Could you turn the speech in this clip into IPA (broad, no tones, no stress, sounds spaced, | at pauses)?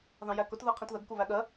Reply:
ð ɑ̃ j æ k ʊ t ð ɜ qʰ ĩ t ð ə ɡ k u β æ ɠ ɜ